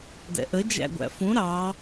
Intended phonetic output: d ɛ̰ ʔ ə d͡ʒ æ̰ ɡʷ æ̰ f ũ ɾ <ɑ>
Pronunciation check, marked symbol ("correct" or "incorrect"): correct